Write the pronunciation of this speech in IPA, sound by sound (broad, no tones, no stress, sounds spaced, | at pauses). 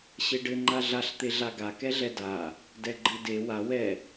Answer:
ɕ e ɖ ɘ ŋ͡ǃ a ɮ a ɬ t̪ e ɮ a ɡ a k ɛ ɮ ɛ d a | d ɛ ɡ͡ǃ ɘ d e w a w ɛ